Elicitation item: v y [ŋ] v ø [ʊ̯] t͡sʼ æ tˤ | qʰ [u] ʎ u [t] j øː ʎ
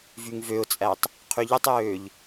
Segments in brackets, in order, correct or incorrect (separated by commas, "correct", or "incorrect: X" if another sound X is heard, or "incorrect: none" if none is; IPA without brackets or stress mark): correct, correct, incorrect: y, incorrect: tˤ